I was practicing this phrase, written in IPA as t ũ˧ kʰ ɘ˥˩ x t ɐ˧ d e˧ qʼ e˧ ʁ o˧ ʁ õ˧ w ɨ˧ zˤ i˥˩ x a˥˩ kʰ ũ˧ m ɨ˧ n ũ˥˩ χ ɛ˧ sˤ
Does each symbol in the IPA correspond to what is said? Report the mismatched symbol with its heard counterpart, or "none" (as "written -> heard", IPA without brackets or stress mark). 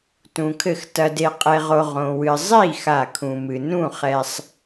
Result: none